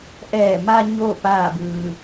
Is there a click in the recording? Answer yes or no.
no